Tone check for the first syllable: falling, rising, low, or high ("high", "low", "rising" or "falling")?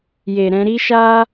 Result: low